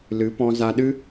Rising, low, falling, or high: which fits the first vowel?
rising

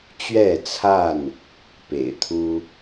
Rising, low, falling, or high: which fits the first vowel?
falling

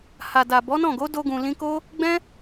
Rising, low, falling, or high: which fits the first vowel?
low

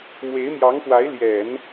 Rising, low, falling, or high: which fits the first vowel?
rising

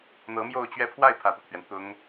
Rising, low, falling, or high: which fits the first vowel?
rising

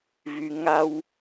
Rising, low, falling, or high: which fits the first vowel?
low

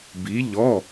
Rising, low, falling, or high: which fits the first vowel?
rising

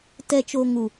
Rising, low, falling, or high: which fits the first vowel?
low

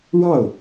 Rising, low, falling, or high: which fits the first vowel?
falling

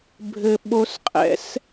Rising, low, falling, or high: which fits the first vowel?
low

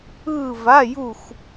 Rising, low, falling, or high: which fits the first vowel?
falling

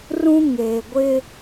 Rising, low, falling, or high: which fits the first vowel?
high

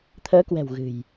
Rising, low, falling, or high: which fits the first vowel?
rising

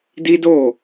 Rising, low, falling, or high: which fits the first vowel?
high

